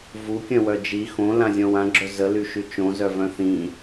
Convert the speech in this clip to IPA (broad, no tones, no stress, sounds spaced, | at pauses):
v u kʲ œ̃ w œ d͡ʒ i x õ l ã zʲ ɔ̃ w ã ɡ͡ǁ œ z ə l y ʃ y t͡ʃ õ z œ v œ̃ θ ĩ